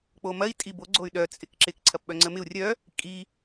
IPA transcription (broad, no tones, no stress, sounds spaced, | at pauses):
k͡p o m ɐ i̯ tʼ i b o ɡ͡ǀ o y̯ ɗ œ t͡sʼ ɪ k ǁ ɪ k ǀʰ ɐ p ɓ œ ŋ͡ǀ ə m ɪ u̯ rʲ œ | kʼ i